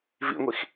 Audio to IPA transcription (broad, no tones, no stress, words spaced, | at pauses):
vḭŋʷix